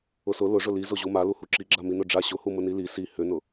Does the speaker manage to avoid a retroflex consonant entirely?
no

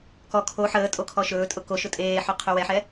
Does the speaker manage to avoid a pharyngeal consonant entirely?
no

